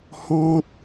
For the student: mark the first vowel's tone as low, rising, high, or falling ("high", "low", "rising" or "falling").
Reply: high